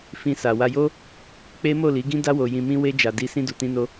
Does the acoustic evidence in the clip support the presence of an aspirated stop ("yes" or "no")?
no